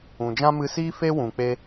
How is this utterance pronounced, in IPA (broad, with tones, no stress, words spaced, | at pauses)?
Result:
ũ˨d͡ʒã˦mɨ˧siː˦ fe˦wũ˨k͡pe˧